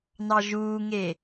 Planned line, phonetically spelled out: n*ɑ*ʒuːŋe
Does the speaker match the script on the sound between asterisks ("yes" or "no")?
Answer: yes